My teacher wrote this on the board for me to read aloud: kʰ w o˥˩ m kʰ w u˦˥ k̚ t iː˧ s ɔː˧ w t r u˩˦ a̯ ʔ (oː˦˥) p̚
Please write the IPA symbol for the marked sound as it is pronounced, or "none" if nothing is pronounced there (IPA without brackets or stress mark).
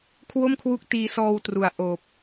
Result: oː˨˩